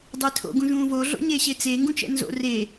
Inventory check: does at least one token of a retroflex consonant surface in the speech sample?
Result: no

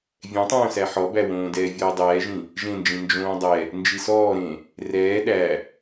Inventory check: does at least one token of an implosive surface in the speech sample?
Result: yes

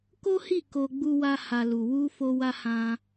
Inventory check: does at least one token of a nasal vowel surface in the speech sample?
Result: yes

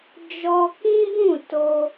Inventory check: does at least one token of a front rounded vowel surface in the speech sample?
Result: no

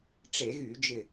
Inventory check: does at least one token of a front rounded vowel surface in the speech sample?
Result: yes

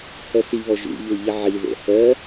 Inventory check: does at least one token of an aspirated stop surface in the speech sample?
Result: no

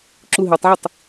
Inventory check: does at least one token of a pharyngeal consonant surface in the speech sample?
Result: yes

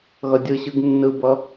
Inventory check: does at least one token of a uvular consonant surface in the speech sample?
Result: no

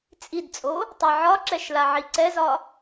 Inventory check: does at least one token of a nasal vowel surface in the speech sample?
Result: no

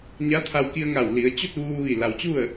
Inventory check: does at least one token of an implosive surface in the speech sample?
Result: no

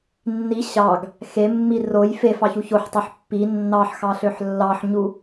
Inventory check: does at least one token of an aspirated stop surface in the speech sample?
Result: no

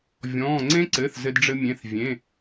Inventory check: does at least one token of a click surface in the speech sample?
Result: yes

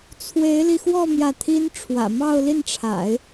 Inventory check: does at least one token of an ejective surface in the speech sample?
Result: no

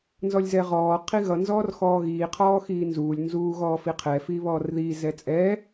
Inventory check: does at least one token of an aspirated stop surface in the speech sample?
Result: yes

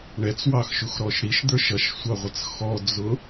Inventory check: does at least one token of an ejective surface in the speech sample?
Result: no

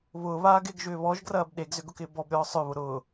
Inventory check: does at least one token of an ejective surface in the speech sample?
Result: no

